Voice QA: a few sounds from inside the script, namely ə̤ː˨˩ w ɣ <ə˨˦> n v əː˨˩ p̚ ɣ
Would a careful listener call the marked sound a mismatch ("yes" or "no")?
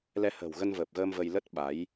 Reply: yes